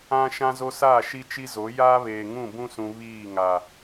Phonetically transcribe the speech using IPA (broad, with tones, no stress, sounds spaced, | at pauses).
ã˦ ʃ ã˦ z o˦ s aː˦˨ ʃ i˦ t͡ʃ i˦ z o˨˦ j aː˦ β eː˨ ŋ ũ˦˨ b ũ˦ s ũ˨ β iː˦˨ ŋ a˨